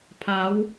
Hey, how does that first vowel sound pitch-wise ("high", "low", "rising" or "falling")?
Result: rising